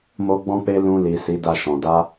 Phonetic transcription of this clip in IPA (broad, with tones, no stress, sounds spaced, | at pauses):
m o˦ ɡ͡b ɔ̃˦ k͡p e˦ l ũ˧ l i˨ s i˨˦ d a˦˨ ʃ ɔ̃˨ d a˧